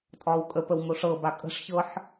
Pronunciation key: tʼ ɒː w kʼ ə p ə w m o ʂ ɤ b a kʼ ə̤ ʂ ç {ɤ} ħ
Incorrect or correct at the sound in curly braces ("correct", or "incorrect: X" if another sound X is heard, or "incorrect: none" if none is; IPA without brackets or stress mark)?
correct